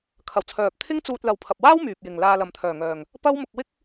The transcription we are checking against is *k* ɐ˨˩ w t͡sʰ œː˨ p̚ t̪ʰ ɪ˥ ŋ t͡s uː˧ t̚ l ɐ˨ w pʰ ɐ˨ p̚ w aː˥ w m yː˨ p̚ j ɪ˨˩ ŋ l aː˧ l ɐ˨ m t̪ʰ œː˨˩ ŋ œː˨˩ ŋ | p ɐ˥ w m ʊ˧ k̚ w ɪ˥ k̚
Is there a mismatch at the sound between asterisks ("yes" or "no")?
yes